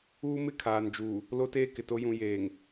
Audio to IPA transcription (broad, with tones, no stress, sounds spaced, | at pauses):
uː˦ m ɪ˦ kʰ aː˨ n d͡ʒ uː˨ | l o˦ t eː˦ k ɪ˨ t o˦ j ũ˨ j eː˨ ŋ